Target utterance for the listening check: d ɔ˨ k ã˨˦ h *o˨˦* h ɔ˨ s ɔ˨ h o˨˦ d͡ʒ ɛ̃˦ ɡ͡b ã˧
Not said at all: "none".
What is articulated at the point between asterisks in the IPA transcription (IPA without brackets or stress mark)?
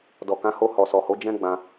o˧